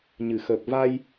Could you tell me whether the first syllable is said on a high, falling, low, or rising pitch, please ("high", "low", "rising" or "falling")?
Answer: low